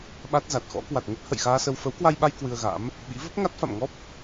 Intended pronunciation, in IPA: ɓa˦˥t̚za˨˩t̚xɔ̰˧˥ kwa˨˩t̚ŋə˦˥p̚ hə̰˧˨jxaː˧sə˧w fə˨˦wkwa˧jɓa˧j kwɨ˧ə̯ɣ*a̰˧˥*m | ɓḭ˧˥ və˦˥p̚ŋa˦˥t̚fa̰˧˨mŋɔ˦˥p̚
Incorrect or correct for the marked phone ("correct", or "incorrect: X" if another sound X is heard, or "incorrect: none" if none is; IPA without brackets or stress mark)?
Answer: correct